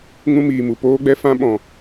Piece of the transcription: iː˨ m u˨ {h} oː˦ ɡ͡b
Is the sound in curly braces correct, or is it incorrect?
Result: incorrect